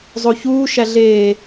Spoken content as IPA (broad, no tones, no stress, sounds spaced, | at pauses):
zˤ o ç uː ʃ æ ɮ eː